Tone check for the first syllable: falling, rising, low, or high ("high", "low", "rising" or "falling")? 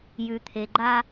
low